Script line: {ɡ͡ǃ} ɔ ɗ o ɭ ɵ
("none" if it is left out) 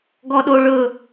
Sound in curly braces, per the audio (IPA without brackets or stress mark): ɡ